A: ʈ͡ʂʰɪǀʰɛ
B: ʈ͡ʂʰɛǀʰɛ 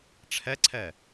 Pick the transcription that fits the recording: B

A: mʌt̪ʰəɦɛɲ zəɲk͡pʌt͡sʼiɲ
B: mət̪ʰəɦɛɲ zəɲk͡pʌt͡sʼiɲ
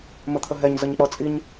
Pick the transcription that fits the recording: B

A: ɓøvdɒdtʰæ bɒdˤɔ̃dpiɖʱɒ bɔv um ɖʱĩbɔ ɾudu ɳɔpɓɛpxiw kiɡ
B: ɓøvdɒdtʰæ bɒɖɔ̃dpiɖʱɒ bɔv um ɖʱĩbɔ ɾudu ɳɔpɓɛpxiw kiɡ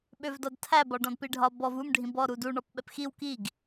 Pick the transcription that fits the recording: B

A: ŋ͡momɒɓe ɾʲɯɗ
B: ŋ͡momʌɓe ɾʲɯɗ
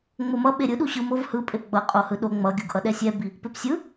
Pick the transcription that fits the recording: B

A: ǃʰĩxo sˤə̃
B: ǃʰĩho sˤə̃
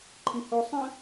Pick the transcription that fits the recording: B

